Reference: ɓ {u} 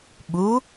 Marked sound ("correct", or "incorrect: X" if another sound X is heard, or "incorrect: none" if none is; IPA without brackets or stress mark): correct